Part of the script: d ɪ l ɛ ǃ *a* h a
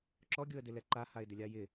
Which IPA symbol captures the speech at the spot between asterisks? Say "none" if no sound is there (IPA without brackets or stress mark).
a